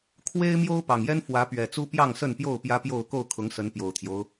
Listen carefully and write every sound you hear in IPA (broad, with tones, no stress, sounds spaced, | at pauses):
kʰ w e˦ ɪ̯ m j o˦ ʊ̯ p ɑ˨˩ ŋ j ɛ˦ n f w ä˨˦ p ɥ ɛ˨˩ t͡s u˦ p j ɑ˥˨ ŋ s ə˥˨ n p j o˥˨ ʊ̯ p j ä˦ p j o˥˨ ʊ̯ k o˥˨ ʊ̯ kʰ ʊ˨˦ ŋ s ə˨˦ n p j o˨˩ ʊ̯ t̪ʰ j o˦ ʊ̯